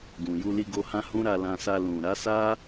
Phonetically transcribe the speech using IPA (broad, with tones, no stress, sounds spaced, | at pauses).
ɡ ũ˨ j u˧ l i˧ ɡ o˧ h ã˦ h ũ˦ ɾ a˧ l ã˧ s a˧ l ũ˨ ɾ a˨˦ s a˦